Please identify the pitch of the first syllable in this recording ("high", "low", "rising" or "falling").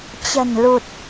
low